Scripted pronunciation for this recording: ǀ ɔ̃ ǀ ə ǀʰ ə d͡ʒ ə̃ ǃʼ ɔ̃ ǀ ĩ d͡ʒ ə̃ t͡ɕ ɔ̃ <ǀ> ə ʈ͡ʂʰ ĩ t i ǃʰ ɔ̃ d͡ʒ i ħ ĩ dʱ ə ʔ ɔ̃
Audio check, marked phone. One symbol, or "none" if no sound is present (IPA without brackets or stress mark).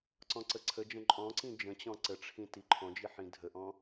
ǀ